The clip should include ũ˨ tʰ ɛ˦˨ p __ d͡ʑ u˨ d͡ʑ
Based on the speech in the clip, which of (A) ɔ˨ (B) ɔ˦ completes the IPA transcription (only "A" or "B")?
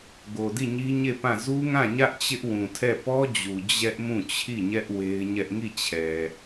B